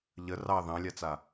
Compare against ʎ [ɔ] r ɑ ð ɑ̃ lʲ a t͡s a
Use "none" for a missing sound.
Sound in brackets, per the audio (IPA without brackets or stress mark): ə